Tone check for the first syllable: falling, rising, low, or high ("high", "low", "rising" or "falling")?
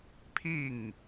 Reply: falling